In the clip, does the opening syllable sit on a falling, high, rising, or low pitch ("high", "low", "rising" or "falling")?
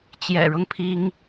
low